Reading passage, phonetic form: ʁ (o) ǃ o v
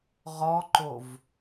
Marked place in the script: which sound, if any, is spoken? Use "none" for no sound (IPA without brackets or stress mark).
ɔ